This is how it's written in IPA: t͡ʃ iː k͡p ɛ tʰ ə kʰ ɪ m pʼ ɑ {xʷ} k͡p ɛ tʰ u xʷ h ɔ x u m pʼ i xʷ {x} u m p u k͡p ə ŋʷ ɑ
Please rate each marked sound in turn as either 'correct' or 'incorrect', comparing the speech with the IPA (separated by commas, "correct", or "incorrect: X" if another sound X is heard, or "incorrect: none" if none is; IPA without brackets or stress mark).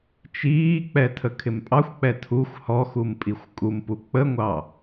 correct, incorrect: kʼ